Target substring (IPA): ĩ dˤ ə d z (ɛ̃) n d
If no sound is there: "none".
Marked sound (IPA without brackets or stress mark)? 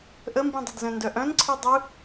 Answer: œ̃